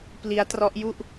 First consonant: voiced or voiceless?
voiceless